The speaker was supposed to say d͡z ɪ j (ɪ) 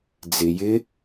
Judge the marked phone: correct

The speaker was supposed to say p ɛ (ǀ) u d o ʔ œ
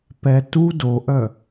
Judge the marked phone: incorrect: t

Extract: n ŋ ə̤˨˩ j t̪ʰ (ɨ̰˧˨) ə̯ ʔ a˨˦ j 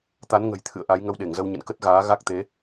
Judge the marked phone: correct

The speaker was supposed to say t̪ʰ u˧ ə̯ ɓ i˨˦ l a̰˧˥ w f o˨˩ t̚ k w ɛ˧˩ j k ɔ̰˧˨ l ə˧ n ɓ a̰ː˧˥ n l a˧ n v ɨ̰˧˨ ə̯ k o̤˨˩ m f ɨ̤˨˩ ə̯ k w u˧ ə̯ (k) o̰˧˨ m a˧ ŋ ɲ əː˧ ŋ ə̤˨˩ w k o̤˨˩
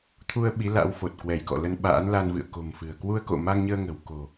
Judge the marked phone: correct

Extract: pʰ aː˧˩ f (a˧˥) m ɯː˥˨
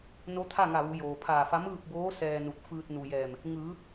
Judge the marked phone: correct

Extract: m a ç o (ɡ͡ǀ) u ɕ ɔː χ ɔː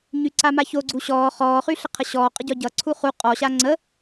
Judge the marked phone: correct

